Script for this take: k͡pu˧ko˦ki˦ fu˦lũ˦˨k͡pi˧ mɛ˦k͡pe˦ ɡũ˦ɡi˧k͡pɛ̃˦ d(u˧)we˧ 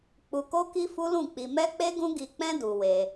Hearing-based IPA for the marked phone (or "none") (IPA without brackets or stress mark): u˧